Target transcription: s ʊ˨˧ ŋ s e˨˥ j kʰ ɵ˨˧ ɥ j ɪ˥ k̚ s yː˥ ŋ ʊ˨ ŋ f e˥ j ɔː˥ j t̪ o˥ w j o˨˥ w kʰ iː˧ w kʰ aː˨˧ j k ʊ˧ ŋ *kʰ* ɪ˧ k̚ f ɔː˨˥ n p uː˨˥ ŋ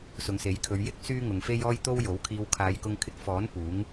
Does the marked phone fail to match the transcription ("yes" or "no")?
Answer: no